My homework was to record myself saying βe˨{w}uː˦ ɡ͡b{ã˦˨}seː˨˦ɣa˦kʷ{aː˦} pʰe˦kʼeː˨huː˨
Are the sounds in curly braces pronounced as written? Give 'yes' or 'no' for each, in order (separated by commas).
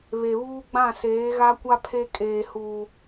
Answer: no, yes, no